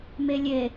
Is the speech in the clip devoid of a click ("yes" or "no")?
yes